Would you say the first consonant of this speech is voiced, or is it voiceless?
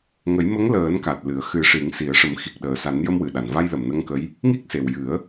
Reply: voiced